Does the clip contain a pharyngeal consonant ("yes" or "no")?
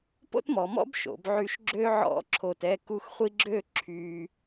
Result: yes